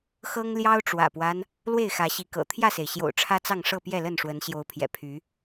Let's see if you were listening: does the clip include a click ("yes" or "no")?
no